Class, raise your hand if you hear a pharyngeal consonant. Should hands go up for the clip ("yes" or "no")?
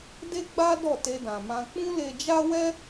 no